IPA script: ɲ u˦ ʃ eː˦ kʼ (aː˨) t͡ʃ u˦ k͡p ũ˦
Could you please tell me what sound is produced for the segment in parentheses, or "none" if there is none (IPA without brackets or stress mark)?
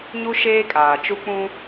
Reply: aː˨